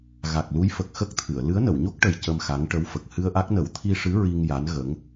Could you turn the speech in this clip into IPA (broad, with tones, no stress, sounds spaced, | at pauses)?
ɣ a˨˩ k̚ l u˧˥ j f ə˨˩ k̚ x ə˦˥ k̚ t̪ʰ ɨ˨˩˨ ə̯ l ɨ˧˥ ə̯ n ə˨˩˨ w ɲ o˦˥ k̚ ʈ ə˨˩ j c ə˧ m x a˧˥ ŋ ʈ ə˧˥ w f ə˨˩ k̚ h ɨ˧ ə̯ ʔ a˦˥ k̚ n ə˨˩˦ w t̪ʰ i˧ ʂ ɨ˧˥ ɹ i˧ ŋ j a˧˥ n ɣ ə˧˥ ŋ